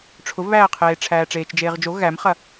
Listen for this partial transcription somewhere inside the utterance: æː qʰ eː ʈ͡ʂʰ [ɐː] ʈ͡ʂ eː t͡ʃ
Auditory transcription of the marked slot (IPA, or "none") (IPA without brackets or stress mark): æː